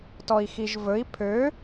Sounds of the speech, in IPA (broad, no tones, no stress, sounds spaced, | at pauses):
t ɔ i̯ x i ʒ v ɵ i̯ pʰ ø